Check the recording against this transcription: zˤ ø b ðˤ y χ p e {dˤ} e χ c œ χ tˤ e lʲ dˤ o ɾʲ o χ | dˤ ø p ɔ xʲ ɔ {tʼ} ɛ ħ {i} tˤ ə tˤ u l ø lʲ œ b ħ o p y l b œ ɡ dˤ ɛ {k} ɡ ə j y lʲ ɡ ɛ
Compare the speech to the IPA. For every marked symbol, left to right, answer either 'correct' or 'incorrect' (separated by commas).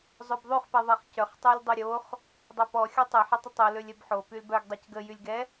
incorrect, incorrect, incorrect, incorrect